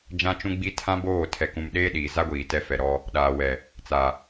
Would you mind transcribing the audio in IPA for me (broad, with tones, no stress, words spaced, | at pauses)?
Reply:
d͡ʒã˦t͡ʃũ˦ɡ͡bi˦ tʰã˦boː˦˨ tʰɛ˨kũ˨m ɗeː˦ɗiː˨za˦ɡʷiː˨ tɛ˦fɛ˨ɾɔ˦ | ɗaː˨wɛ˨ | t͡sa˨